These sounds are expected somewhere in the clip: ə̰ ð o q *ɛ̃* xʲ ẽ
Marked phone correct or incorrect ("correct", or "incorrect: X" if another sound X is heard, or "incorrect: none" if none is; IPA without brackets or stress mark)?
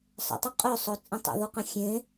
incorrect: ə̃